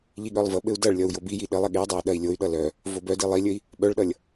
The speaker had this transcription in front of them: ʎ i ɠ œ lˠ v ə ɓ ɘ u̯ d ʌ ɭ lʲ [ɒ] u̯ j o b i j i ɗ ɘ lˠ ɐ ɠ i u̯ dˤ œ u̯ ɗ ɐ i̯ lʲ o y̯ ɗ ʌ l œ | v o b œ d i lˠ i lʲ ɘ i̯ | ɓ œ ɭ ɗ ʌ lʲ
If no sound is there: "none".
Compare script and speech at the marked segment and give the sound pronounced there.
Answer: ʌ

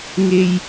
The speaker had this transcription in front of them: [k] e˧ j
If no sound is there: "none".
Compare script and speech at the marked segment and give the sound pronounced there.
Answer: ŋ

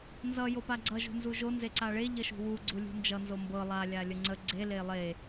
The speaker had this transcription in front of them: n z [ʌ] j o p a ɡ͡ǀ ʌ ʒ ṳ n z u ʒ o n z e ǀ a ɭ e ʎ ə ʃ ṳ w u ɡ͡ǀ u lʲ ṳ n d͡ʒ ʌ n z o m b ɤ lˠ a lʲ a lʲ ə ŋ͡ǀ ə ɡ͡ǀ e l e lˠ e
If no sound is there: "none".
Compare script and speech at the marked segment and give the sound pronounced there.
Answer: ʌ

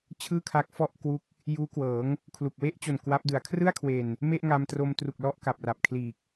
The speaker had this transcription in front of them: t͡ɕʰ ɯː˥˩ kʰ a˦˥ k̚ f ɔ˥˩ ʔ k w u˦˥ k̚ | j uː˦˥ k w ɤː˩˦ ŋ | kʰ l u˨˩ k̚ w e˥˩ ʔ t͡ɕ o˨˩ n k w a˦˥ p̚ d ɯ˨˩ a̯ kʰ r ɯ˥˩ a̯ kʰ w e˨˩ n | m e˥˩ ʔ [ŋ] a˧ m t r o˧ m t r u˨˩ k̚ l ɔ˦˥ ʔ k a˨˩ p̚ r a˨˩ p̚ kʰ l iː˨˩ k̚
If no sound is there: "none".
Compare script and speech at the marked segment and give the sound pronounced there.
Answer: ŋ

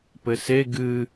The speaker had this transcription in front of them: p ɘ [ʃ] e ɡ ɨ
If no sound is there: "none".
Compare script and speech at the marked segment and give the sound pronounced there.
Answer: s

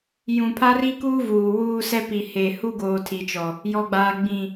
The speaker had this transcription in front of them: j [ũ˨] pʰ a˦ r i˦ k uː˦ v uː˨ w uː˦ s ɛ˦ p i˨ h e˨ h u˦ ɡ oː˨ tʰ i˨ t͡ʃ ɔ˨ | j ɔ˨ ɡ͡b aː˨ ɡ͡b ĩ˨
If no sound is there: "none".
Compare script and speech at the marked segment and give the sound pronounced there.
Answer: ũ˨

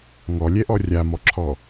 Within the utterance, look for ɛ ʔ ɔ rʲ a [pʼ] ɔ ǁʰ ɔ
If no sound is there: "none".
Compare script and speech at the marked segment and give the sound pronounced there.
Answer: m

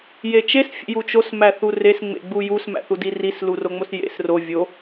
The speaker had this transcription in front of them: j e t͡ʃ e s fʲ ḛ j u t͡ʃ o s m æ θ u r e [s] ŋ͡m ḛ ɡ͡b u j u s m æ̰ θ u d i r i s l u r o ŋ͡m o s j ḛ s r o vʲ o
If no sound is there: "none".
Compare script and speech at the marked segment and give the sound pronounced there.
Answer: s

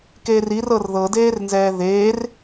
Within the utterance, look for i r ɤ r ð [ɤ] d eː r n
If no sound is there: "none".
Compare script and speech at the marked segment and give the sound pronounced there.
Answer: ɤ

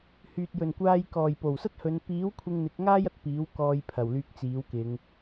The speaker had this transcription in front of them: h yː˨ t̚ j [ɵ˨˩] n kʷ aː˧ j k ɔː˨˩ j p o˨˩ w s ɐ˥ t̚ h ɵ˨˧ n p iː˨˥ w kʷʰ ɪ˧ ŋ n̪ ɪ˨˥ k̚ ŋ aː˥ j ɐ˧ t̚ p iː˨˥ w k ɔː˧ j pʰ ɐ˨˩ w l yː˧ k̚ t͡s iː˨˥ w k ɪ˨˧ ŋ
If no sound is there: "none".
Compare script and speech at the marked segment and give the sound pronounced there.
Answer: ɵ˨˩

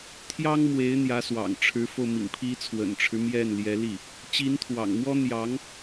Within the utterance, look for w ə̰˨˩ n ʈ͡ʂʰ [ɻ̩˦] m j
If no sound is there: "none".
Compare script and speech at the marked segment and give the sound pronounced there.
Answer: ɻ̩˦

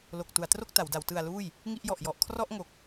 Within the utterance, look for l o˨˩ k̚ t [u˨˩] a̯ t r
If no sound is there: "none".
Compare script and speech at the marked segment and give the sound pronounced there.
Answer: u˩˦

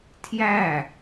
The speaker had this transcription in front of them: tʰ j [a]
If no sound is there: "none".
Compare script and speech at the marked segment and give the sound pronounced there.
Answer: æ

